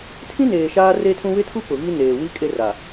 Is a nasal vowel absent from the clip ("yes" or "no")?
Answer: no